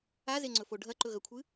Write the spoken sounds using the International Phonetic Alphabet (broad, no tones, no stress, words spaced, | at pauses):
azeŋ͡ǀɵfo ɖʱɐǃɵɣɐkʷʰɨ